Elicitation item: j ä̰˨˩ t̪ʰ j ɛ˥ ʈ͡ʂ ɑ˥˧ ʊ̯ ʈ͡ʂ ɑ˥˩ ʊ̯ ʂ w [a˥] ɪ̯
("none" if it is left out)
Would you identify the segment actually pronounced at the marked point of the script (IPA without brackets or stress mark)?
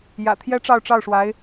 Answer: a˧˥